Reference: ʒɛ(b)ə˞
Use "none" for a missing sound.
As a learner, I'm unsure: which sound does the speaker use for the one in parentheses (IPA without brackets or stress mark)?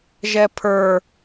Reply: pʰ